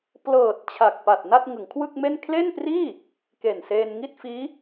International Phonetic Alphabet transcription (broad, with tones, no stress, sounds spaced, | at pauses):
p l ɤː˨˩ t̚ t͡ɕʰ a˨˩ k̚ p a˨˩ t̚ n a˥˩ t̚ ŋ ɯ˩˦ ŋ kʰ w ɯ˥˩ k̚ m e˥˩ n kʰ l e˥˩ n p r iː˥˩ | k e˨˩ n s eː˧ n ŋ i˥˩ t̚ f iː˦˥